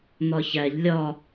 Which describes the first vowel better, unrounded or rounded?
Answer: rounded